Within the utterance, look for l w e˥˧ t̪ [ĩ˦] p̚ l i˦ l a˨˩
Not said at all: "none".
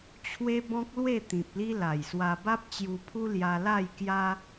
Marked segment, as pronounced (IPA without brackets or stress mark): ĩ˨